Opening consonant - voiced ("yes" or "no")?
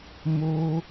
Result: yes